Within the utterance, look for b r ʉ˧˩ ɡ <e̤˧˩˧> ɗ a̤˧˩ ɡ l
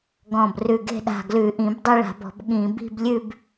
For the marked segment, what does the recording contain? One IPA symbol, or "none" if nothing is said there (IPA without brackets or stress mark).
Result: e̤˥˧